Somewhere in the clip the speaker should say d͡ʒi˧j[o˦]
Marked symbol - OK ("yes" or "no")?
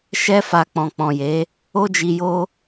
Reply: yes